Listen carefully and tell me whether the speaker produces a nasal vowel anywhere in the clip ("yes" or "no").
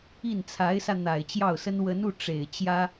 no